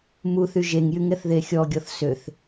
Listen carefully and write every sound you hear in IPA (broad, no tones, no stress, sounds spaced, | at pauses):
m u θ y ʒ e ŋ j y ŋ ɛ θ ð e xʲ ɔ ɡʲ ɔ θ s ø θ